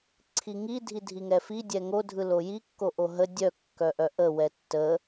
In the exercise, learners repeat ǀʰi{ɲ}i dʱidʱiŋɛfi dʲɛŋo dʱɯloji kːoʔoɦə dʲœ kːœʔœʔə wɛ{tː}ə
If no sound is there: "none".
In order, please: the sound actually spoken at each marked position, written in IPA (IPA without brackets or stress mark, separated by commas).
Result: ŋ, tː